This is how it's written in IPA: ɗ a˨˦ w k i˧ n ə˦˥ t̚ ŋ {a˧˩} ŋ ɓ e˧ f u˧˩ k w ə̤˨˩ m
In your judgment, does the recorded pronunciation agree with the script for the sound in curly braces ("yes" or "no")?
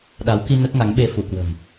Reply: no